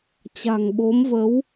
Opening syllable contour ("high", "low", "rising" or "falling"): low